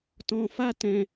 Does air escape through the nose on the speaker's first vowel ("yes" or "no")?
yes